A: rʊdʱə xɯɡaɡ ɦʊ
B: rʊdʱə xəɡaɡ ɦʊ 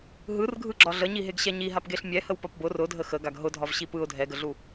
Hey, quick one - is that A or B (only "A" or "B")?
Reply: B